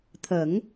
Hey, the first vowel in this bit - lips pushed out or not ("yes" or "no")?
no